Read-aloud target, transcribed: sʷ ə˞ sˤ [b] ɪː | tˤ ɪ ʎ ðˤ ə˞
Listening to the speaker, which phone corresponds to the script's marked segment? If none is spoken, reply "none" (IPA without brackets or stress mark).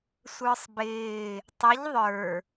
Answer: b